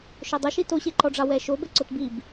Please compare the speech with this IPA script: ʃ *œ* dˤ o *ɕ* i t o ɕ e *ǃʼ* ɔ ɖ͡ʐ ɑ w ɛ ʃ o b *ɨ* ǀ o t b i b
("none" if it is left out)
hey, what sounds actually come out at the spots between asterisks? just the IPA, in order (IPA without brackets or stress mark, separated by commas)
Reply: œ, ʃ, ǃ, ɛ